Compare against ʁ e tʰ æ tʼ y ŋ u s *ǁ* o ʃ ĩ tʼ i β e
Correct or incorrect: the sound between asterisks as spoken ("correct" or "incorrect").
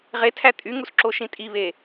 correct